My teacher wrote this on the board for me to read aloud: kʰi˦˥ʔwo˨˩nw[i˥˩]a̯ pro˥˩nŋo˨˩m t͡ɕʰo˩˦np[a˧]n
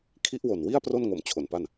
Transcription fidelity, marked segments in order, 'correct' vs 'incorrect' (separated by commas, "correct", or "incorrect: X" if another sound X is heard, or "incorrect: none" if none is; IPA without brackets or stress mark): correct, incorrect: a˥˩